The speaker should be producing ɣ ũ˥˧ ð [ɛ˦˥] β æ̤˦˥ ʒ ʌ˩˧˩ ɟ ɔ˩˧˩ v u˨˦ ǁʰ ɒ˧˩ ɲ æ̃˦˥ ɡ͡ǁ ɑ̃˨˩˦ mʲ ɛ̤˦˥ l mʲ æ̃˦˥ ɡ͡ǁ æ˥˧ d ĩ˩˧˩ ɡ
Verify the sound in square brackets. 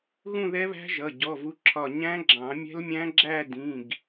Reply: correct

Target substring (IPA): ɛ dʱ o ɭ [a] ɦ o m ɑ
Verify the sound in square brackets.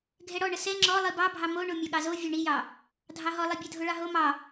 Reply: incorrect: ɑ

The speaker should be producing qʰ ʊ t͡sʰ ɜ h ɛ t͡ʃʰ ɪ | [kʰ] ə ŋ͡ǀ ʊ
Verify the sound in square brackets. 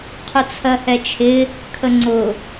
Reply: correct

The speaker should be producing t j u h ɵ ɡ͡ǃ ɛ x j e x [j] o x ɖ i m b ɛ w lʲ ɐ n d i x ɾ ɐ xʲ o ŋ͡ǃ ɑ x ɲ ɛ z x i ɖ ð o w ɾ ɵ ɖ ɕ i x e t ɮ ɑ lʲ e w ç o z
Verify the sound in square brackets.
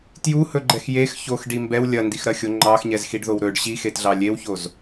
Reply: incorrect: ç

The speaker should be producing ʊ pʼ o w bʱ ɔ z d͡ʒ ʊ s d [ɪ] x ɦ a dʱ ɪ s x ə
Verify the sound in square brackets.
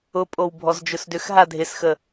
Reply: incorrect: ʏ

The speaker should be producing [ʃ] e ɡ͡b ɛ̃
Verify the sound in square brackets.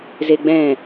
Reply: incorrect: z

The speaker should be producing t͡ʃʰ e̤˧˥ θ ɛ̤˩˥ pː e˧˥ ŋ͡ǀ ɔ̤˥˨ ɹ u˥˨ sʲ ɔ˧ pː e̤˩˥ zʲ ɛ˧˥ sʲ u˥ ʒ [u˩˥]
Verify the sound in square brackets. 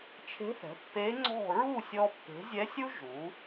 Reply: correct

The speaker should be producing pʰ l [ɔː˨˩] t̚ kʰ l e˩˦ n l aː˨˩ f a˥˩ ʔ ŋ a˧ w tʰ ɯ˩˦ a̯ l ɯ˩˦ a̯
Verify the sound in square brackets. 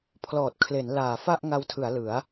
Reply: correct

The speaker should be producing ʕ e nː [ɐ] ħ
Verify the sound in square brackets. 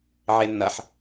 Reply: correct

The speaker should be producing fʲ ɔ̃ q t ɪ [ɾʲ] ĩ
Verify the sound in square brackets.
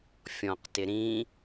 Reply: incorrect: ɾ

